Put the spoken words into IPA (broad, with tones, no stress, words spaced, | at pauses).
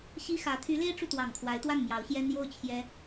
ɕi˥ xä˧˥ t̪ʰy˧˥le˥ɪ̯ʈ͡ʂu˨ t̪wɑ˨˩ŋkʰwa˧˥ɪ̯t̪wa˥˩n mjɑ˧˥ʊ̯ɕjɛ˥n jo˥˩ʊ̯ t͡ɕʰjɛ˥